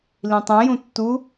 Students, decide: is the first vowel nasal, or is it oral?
nasal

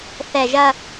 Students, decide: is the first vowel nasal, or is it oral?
oral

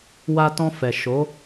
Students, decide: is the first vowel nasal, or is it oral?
oral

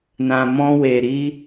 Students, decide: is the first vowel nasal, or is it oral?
nasal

